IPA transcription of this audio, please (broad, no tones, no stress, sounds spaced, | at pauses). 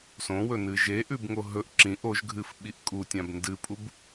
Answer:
s õ w ɵ n ɨ ʒ e ʔ ʉ b ŋ o ɦ ɵ ʔ ǁ ĩ ʔ o ʒ ɡʱ ɨ f ɓ i ʔ kʼ u tʲ ã b n d ɨ pʼ u b